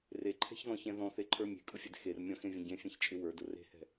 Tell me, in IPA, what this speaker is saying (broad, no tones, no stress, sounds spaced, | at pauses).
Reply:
r e ǃʰ ɛ̤ ç ð ɔ̃ ç ɛ̃ ð ɔ̃ θ e ǃʰ ə˞ mʲ e̤ kʼ ʊ fʲ ɛ d x e r mʲ ɔ̃ x ẽ vʲ ə̃ ɟ ẽ fʲ ẽ ç t͡ʃʼ ɪ w ə˞ d ʊ r e̤ h ɛ̤